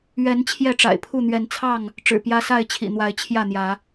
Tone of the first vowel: rising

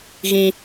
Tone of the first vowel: high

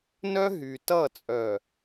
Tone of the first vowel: high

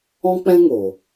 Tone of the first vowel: high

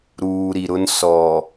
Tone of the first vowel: low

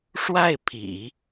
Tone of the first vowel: falling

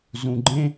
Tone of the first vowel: low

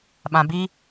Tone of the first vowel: low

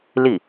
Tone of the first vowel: falling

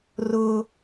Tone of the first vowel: high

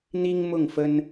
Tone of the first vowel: high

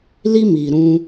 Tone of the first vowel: high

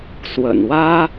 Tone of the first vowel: low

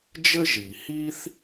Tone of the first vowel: high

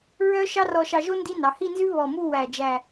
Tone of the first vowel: high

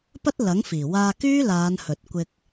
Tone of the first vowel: high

